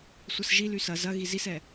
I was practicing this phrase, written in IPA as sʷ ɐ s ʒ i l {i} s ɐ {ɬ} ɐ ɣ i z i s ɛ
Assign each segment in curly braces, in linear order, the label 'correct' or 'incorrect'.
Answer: incorrect, incorrect

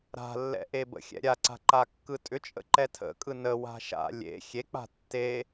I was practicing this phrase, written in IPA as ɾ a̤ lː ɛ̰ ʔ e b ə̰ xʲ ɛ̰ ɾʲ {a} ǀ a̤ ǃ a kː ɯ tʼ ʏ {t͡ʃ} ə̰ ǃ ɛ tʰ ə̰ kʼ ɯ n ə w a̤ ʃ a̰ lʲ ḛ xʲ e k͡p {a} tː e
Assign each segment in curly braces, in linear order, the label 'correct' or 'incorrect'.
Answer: correct, incorrect, incorrect

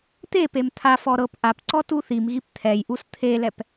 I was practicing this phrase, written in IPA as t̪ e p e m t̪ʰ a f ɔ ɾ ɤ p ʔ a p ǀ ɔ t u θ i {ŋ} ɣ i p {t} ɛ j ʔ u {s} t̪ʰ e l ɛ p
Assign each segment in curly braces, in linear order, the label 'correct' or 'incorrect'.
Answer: incorrect, incorrect, correct

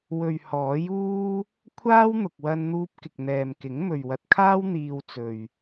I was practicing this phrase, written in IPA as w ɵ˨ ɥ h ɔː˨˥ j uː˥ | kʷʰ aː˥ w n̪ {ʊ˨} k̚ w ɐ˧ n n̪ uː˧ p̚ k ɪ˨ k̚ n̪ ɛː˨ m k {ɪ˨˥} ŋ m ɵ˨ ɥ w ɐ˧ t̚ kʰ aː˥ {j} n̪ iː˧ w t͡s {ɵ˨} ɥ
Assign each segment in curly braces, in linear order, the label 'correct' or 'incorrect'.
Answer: correct, correct, incorrect, correct

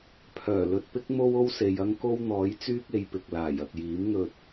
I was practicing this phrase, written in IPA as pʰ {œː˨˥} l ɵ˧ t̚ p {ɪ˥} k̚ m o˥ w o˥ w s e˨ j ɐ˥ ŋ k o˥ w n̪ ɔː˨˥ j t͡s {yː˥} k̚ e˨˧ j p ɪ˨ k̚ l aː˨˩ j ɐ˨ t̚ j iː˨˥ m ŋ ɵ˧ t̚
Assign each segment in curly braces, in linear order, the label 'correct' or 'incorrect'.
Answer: incorrect, correct, correct

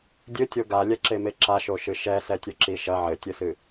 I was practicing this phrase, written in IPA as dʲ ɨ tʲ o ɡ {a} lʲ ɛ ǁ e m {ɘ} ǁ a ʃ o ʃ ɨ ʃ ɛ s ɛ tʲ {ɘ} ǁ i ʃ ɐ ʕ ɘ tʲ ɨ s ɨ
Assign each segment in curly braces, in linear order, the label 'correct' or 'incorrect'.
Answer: correct, incorrect, correct

